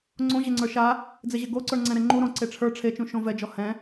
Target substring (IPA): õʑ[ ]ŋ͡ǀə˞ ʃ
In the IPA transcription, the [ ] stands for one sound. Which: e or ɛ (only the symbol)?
e